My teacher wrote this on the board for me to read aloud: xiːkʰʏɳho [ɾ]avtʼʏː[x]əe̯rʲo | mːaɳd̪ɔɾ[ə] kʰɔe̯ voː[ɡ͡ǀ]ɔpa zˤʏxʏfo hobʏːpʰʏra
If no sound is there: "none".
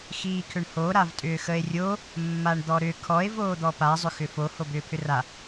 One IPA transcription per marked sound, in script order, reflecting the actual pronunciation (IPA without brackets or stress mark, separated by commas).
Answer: ɾ, x, ʏ, d̪